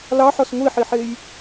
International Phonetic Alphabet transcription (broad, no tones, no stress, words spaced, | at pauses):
lɑħɔs ŋʷiħiħej